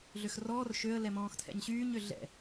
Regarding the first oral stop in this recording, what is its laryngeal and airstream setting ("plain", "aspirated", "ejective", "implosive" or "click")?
aspirated